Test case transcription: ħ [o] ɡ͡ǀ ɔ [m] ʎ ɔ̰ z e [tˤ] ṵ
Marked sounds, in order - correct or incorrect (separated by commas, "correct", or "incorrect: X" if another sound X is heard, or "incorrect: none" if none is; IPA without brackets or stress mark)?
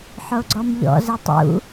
correct, correct, correct